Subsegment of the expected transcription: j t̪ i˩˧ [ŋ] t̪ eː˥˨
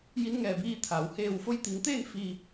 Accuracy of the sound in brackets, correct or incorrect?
correct